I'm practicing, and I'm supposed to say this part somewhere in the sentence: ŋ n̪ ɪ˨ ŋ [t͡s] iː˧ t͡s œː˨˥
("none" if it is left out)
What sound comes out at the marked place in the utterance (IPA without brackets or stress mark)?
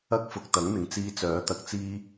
t͡s